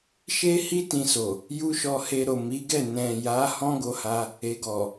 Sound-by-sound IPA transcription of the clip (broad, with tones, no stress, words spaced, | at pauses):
ʃe˦hi˦ tĩ˧so˨ | ju˦ʃɔ˧he˧ɾo˨ mi˨˦ɡɛ˦˨ nɛ̃˨ja˨˦ hɔ̃˦ɡo˧ha˧ | e˨ɡɔ˨